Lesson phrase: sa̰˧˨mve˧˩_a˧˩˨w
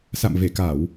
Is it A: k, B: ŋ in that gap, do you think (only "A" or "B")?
A